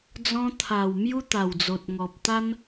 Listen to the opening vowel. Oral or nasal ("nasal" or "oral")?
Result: nasal